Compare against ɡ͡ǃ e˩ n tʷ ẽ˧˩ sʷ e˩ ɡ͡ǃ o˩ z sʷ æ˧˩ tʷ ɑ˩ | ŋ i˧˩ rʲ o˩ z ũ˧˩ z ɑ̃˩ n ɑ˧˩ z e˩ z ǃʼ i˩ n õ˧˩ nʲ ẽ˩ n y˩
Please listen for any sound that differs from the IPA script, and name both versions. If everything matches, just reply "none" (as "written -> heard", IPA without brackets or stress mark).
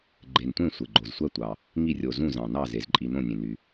none